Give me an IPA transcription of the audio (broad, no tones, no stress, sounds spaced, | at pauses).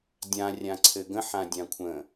dʲ ã rʲ ã ǀʰ ɘ ɡ ə̃ ħ ã dʲ ã kʷʰ ə̃